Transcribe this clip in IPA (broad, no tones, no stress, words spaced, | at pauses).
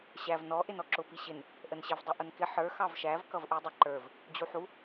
ɕæv nɔ ʔɪnɔǁʊ piɕɪn | ʔənɕɪv dˤʊʔʊnkɪ ħə˞ xɑvʃæv kʌvʔə˞dˤɪ ǃə˞v | d͡ʑuħu